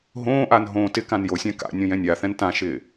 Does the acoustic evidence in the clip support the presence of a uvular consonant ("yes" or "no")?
no